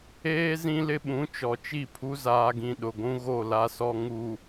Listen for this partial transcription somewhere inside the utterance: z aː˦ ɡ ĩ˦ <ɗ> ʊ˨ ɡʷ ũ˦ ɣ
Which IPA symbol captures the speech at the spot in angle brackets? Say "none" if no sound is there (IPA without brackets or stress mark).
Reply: ɗ